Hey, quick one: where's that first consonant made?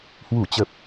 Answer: throat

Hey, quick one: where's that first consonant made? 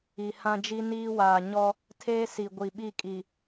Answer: throat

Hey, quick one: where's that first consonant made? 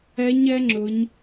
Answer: palate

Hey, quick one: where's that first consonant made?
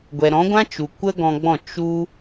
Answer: velum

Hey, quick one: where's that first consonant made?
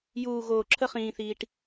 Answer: palate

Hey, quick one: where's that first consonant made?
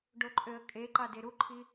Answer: retroflex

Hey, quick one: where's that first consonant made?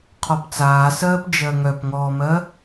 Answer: uvula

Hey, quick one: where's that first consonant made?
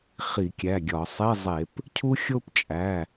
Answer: uvula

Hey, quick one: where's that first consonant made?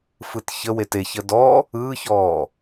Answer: lips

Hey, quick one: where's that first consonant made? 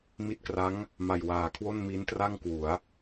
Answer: lips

